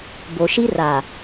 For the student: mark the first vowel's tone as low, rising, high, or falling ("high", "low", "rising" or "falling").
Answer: low